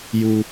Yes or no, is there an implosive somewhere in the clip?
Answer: no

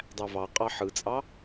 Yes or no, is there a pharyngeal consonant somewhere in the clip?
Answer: yes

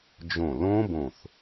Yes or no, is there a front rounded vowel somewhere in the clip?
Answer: no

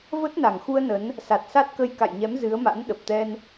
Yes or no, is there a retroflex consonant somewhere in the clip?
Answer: no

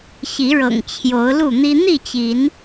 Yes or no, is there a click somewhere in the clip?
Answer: no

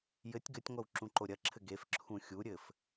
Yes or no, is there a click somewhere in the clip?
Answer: yes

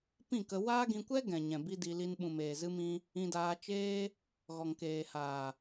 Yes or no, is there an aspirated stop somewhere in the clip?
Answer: no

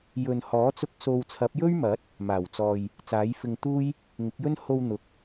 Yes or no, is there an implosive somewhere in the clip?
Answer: no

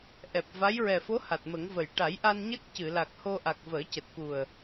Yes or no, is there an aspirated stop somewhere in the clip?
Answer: no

